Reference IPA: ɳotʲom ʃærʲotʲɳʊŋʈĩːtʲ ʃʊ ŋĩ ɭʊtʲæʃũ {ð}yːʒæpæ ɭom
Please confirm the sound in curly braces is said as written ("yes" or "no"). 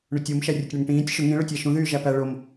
yes